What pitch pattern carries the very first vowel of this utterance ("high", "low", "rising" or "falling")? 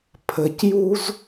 low